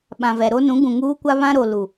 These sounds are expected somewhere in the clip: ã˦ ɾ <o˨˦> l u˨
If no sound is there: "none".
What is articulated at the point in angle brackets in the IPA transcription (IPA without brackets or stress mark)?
o˨